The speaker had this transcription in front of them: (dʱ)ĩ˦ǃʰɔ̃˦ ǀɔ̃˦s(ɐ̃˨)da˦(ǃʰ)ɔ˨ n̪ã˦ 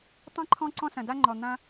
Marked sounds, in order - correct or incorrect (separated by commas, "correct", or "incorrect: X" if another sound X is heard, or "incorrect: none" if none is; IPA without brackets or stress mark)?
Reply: incorrect: tˤ, correct, incorrect: ŋ͡ǃ